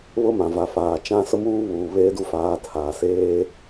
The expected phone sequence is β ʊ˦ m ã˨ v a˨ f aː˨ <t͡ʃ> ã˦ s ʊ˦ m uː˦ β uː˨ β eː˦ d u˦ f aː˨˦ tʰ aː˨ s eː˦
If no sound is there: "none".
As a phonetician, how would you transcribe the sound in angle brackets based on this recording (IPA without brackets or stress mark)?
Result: t͡ʃ